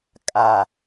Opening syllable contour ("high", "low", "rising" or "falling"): low